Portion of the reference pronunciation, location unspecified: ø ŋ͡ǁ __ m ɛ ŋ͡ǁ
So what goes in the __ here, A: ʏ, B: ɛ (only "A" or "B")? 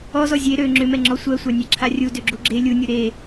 A